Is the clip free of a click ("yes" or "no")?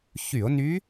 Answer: yes